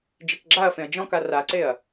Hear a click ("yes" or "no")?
yes